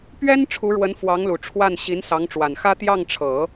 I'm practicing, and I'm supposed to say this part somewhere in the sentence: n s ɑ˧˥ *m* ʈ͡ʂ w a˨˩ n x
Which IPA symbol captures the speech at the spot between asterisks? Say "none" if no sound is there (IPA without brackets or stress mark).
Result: ŋ